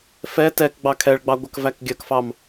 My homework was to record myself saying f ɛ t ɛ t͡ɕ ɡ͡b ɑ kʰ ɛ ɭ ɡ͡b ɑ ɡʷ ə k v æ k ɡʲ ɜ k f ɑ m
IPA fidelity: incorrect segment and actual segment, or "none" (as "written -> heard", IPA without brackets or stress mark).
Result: t͡ɕ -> k